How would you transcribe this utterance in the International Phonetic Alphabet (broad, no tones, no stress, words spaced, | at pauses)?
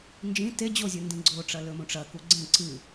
nd͡ʒĩ te d͡ʑozʲɨ ndĩɡ͡ǀoʈ͡ʂɐ lɵmũʈ͡ʂɐku ɡ͡ǀẽ ǀɨ